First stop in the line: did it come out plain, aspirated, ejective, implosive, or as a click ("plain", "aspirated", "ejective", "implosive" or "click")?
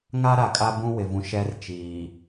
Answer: ejective